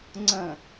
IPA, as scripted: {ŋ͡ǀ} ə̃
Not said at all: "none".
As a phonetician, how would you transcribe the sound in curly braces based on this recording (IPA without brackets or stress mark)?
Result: ŋ͡ǀ